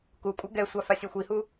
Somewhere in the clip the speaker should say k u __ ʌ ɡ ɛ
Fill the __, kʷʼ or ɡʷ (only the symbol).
kʷʼ